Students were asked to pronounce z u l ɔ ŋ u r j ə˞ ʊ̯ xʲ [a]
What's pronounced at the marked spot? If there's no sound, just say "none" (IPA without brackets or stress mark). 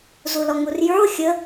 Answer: ə